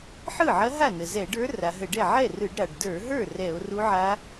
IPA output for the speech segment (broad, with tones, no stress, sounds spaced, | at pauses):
ħ ɯ˥˩ ʕ ɐ˧˥ ɦ a˥˩ n ə˩ z ɛ˧˩˧ ɖ ə˞˧˥ r a˩˧ ɦ ə˧˩˧ ɖ ɛ˥˩ ʕ ɛ˥˩ r ɯ˧˩˧ ɖ ɾ a˩ ɖ d ə˞˧˩˧ ɦ ə˞˥˩ r ɛ˧˩˧ o̯ r u˧˥ ʕ a˧˥